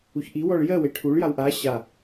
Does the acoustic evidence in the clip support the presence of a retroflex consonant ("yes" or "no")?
yes